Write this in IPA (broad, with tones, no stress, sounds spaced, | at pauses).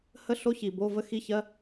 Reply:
h ə˦˥ ɬ o˦˥ ç i˩ b o˧˥˧ v ə˦˥ x i˦˥ ç ɜ˧˥˧